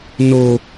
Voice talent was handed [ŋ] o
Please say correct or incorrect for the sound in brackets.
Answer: incorrect